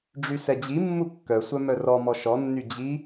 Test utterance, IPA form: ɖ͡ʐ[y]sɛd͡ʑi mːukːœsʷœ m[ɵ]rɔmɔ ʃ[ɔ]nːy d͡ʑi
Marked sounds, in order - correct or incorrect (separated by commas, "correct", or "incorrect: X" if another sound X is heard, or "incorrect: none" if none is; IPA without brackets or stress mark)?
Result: correct, incorrect: œ, correct